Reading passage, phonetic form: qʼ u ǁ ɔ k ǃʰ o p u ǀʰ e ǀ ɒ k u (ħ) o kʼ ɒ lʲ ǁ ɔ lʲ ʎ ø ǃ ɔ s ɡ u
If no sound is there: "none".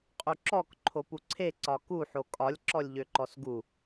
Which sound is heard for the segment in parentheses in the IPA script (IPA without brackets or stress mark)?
ħ